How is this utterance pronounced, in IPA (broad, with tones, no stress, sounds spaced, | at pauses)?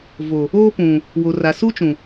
v o˨ | oː˦ p ũ˨ | w o˨ r a˨ s u˦ t͡ʃ ũ˨